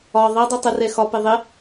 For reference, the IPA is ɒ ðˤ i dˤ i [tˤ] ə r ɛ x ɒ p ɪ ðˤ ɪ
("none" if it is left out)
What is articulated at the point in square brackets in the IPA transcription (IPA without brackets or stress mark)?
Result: tˤ